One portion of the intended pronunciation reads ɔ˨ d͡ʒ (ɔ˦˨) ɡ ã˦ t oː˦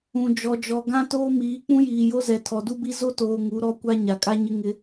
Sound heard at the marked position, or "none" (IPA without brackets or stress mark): ɔ˨